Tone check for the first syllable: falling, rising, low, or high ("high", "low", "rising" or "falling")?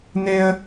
high